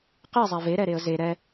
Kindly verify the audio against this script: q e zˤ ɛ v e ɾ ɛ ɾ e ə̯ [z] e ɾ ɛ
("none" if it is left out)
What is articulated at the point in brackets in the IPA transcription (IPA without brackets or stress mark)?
z